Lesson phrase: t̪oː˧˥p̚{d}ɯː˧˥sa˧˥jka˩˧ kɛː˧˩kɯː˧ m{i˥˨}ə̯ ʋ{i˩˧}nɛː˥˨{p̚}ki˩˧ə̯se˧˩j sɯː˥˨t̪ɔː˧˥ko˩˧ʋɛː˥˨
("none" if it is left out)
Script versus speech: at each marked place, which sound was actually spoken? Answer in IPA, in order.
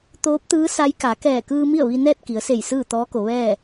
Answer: t̪, i˥˨, i˧, t̚

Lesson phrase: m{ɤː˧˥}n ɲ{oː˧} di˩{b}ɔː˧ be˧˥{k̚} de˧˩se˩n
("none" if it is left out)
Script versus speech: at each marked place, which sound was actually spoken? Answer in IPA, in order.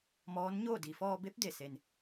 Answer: ɔː˧˥, oː˥˨, f, p̚

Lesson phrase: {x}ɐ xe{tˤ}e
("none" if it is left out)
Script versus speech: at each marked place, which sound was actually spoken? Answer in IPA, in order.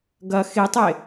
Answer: ɡ, tˤ

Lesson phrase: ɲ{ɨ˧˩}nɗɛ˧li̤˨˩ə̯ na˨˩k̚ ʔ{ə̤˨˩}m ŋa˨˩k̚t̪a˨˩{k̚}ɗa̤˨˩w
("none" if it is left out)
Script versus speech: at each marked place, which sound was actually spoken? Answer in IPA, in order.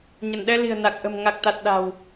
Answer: ə˧˩, ə̤˨˩, t̚

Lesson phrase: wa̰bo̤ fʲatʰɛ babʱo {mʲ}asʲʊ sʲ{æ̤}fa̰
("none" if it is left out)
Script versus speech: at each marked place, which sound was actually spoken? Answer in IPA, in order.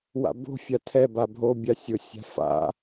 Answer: bʲ, a̤

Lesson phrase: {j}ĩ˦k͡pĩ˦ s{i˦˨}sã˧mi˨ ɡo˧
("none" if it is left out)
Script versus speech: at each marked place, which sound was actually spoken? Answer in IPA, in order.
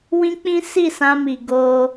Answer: w, i˦˨

